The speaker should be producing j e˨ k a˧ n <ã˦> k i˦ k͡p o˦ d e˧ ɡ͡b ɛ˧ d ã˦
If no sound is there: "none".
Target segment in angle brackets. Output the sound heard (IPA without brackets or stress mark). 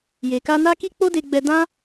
a˦